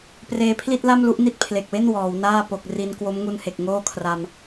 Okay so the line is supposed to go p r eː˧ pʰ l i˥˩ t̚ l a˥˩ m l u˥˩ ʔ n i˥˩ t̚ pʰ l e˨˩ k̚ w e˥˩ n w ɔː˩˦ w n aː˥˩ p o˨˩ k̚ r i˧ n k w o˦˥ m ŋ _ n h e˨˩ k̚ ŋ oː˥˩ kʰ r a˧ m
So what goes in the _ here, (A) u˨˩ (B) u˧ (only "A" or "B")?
B